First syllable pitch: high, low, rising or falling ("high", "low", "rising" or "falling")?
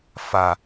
low